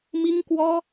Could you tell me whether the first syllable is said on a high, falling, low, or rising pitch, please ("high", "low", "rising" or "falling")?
high